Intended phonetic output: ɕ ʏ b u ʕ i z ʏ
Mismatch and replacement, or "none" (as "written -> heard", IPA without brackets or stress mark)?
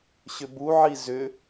none